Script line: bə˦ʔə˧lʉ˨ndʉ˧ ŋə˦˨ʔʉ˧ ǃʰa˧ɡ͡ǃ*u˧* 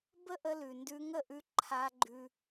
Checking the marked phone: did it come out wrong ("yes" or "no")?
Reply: yes